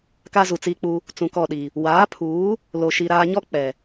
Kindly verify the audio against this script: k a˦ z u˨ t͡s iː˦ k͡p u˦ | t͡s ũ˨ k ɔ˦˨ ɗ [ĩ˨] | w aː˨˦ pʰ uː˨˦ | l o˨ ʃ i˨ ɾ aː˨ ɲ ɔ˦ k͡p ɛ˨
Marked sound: incorrect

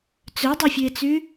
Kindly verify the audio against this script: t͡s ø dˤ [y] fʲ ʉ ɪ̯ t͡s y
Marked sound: incorrect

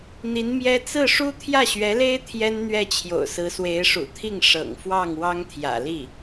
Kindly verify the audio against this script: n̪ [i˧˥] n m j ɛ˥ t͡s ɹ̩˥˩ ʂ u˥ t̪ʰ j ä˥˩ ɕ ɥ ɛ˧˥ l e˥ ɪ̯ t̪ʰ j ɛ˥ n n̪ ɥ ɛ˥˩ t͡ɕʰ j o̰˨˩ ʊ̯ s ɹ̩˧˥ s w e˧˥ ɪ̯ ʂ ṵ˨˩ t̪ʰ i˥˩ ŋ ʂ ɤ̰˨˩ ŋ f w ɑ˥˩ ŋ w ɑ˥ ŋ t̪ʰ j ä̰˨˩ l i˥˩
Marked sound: correct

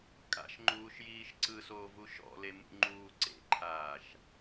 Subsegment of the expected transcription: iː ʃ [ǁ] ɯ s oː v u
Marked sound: incorrect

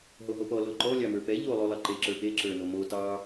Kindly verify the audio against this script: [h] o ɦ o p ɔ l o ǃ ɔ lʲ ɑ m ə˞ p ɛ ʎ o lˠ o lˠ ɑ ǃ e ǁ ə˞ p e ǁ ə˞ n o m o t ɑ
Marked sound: incorrect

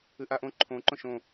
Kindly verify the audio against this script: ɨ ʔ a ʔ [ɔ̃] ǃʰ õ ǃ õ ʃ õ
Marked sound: incorrect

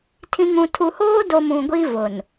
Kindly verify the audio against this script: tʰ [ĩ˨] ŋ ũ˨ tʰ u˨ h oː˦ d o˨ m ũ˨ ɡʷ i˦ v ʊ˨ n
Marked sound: correct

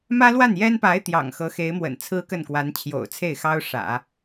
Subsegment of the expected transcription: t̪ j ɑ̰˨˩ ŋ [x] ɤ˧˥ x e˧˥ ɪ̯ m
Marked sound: correct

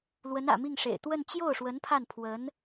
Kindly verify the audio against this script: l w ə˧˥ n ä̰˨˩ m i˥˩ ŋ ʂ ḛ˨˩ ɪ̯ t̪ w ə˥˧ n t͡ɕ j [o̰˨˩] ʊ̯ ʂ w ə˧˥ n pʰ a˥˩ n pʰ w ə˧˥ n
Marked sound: incorrect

